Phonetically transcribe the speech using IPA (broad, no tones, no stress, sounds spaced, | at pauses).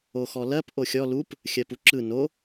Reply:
o x ɔ l ɜ p ʔ o xʲ ɔ l u p | xʲ ɜ p u ǁ ɯ n o